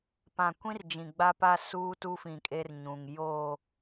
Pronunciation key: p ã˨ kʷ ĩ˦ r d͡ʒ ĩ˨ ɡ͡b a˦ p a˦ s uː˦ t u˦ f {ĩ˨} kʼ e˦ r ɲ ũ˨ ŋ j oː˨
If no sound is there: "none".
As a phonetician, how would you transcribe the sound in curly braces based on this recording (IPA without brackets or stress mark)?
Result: ĩ˨